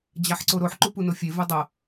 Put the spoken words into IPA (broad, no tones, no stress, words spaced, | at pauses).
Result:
d͡ʑaħǀoɾoħ ǃupunofʲe vudˤɤ